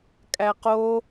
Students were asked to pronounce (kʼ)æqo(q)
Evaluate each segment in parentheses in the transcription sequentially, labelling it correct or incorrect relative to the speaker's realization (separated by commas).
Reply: correct, incorrect